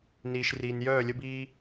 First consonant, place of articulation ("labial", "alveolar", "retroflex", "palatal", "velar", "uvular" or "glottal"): alveolar